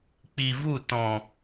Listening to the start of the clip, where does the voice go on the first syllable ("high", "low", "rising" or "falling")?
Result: low